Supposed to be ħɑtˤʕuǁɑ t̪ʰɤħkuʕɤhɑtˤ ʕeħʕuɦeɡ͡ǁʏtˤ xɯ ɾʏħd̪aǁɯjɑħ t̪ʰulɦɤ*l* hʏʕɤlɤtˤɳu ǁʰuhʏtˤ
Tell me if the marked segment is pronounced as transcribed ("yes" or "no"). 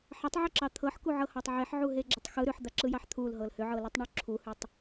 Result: yes